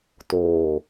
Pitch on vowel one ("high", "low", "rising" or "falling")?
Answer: low